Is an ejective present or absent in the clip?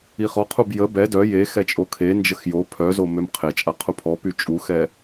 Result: present